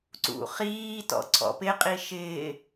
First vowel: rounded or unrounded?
rounded